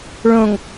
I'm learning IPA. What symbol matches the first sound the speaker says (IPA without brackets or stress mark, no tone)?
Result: ɭ